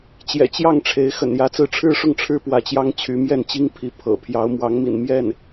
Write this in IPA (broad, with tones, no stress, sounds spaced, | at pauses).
t͡ɕ j ɛ̰˨˩ t͡ɕ j ɑ˥˩ ŋ ʈ͡ʂʰ e˧˥ ɪ̯ x ə̰˨˩ n j ä˧˥ t͡s ɹ̩˧˥ ʈ͡ʂʰ ɻ̩˥ ʂ ʊ˥˩ ŋ ʈ͡ʂʰ ɻ̩˥ p w ä˧˥ t͡ɕ j ɑ˥ ŋ t͡ɕʰ y˧˥ m j ɛ˥˩ n t͡ɕ i˥ ŋ pʰ i˧˥ pʰ ɤ̰˨˩ pʰ j ɑ˧˥ ʊ̯ m w ɑ˧˥ ŋ m ḭ˨˩ n m j ɛ˥˩ n